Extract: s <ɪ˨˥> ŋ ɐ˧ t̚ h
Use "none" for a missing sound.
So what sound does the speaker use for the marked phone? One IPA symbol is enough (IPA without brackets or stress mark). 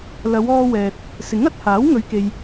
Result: ɪ˨˥